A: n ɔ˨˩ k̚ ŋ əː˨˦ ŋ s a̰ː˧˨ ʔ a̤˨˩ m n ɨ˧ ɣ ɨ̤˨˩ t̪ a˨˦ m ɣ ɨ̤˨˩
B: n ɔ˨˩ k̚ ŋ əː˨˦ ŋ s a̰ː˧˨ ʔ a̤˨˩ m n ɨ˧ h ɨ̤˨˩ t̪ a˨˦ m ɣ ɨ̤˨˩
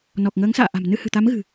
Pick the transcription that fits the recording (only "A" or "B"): B